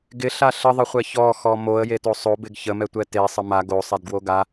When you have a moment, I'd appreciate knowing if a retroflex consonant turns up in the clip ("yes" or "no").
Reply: no